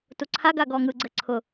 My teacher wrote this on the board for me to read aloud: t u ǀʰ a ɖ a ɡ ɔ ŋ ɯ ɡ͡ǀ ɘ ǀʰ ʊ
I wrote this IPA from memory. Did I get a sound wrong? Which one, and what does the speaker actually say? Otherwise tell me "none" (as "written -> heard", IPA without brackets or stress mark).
ɖ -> ɡ